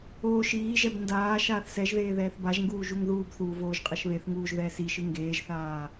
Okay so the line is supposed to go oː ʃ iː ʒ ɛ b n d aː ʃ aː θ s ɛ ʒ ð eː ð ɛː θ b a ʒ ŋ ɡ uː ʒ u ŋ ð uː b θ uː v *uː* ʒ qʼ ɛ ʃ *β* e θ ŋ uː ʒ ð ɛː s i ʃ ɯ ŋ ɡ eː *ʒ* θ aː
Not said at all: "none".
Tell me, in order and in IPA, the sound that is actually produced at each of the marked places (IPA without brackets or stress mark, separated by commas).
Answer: oː, β, ʒ